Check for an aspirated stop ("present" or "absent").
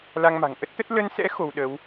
absent